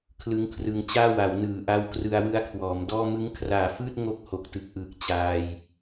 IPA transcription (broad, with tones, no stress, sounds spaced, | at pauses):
kʰ l ɯ˦˥ ŋ kʰ r ɯ˧ ŋ t͡ɕ aː˥˩ w a˩˦ w n ɯː˨˩ ʔ a˦˥ w k r ɯ˧ a̯ w ɯ˦˥ a̯ kʰ w ɔː˩˦ m d ɔː˥˩ m ɯ˦˥ ŋ kʰ r aː˨˩ f ɯː˥˩ t̚ ŋ o˥˩ k̚ h o˨˩ k̚ t ɯ˨˩ k̚ ʔ ɯː˨˩ k̚ t͡ɕ aː˧ j